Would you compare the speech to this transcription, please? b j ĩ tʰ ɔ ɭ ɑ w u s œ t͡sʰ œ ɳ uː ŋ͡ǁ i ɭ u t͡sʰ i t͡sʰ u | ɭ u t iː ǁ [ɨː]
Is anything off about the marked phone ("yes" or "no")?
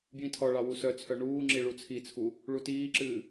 no